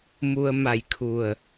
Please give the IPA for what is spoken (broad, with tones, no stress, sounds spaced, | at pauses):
m u˧ ə̯ m a˧˩ j kʰ u˧˩ ə̯